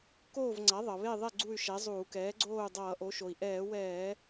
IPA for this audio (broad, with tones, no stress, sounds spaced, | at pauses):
k oː˥˨ v ŋ͡ǀ a˩˥ ðˤ ʌ˩ β e˥˨ ðˤ ɛ˥˨ ɡ͡ǀ u˥˨ y̯ ʃ ɛ˩˥ zˤ uː˧˩˧ k ɛː˩˥ ɡ͡ǀ oː˥˨ u̯ dˤ ʌː˧˩˧ ʔ o˩˥ ʃ o˩ i̯ ʔ ɛː˧˩˧ w ɛː˧˩˧